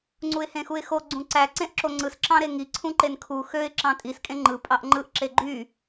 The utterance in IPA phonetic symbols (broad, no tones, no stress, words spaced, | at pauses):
ŋ͡ǀuɪ̯hẽxuɪ̯xo ɡ͡ǀũǀæ ǀẽʔǁoŋ͡ǀɯs ǁɑ̃ɾeŋi ǀʰũǃenkʰu xøɪ̯ ǁɑ̃tʼis kʼẽŋ͡ǃɯ pʼɑʔŋ͡ǃɯʔ ǁeɡ͡ǃy